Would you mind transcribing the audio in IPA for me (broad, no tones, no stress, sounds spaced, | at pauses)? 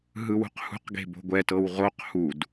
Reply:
ɦ ɯ w ṳ q h ṳ q ɡ e̤ b o̤ ɡʷ ɛ t ɤ w ʁ o q h u d